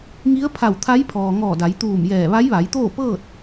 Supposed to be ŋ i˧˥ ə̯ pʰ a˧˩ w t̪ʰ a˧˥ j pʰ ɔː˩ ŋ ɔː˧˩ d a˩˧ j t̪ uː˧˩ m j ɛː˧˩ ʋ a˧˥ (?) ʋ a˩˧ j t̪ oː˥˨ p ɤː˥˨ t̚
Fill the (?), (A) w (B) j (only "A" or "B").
B